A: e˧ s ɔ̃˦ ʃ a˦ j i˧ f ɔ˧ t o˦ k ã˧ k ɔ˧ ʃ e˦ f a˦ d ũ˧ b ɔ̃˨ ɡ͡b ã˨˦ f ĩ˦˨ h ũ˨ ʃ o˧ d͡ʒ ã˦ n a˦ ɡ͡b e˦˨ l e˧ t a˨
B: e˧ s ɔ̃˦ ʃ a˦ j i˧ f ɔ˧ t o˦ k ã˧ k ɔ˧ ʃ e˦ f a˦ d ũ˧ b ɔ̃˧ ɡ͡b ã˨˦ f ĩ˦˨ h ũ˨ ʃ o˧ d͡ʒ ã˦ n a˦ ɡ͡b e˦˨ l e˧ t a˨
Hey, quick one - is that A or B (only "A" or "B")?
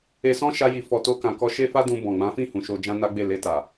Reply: A